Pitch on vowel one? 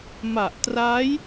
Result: low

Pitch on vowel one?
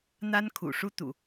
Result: high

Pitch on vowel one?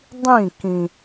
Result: falling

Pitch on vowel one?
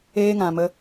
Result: high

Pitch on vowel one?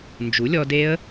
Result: rising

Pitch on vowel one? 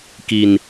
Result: low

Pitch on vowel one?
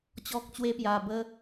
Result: high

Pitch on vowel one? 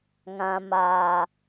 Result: low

